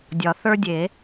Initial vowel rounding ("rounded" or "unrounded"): rounded